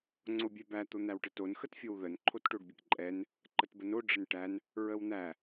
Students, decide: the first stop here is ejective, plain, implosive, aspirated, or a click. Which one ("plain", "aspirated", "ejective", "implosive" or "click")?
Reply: click